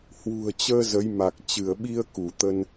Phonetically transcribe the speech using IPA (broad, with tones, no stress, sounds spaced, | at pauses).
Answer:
h w ṳ˨˩ ə̯ t͡ɕ əː˧ z ə˨˦ j m a˨˩ k̚ t͡ɕ ɨ˧˩ ə̯ ɓ i˧ ə̯ k u˧˩ t̪ ə˧ n